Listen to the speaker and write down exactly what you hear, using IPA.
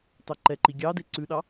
t ɑ ǃ ɛ ǃ i ɡʲ ɑ d e ǀ ʉ ɗ ɑ

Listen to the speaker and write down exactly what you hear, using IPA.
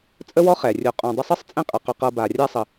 t͡sʼ ə˥ w ɔ˥ χ ɛ˩ rʲ o˨ qʼ õ˨ dˤ ə˦ sˤ ɤ˥ sˤ t͡sʼ ẽ˦ qʼ ə˩ q ɵ˨ q ɤ˨ b a˩ rʲ a˦ sˤ ə˨

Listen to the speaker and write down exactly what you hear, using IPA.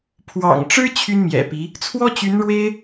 pʰ w ɑ̰˨˩ ŋ ʈ͡ʂ ɻ̩˥ t͡ɕʰ y˥ n m j ɛ̰˨˩ p i˧˥ | t͡sʰ w ɔ˥ t͡ɕ y˧˥ n ɻ w e˥ ɪ̯

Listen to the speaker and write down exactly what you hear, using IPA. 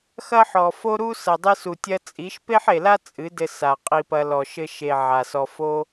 x ɐ˦ ħ ɔ˨ f o˦ ɾ u˦ s ɐ˨ dˤ ɨ˧ s u˨ tʲ ɐ˧ t͡sʼ i˨˦ ʃ p e˦ ħ e˨ l a˦ t͡sʼ ɨ˨˦ d ɘ˧ s a˨ qʼ i˧ p ɐ˧ l ɔ˨ ʃ ɘ˧ ʃ e˨ ʕ a˨ s ɔ˧ f o˦

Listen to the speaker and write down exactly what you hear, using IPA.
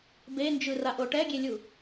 b e n d͡ʒ ɯ r a ʔ o ʈ ɛ ɡʲ e lʲ u

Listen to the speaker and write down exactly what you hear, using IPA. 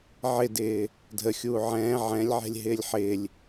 ʕ ɪ d ɪː | dʱ ə xʲ uː ʕ ɛ̃ː ʕ ɛ̃ lʲ ʕ ɛ̤ lʲ ɦ ɪː lʲ ħ ɪː lʲ

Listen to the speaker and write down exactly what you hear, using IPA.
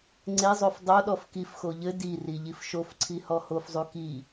ŋ͡ǀ e zˤ o f dˤ o ɗ ɔ f k i f x o ʎ ɘ d i r i ʎ i f ʃ o f ǀʰ i h ɔ h o f zˤ u k i

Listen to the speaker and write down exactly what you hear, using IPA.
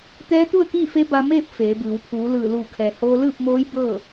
t̪ ɛː˧˥ t̪ u˥˨ ə̯ k iː˥˨ f e˧˥ b a˧ m eː˥˨ p̚ f eː˩˧ b ɯː˩˧ w pʰ uː˩˧ l ɯː˧˩ l uː˧˩ kʰ ɛː˩ h oː˧ l ɯː˥˨ p̚ m oː˧˥ j b ɤː˥˨

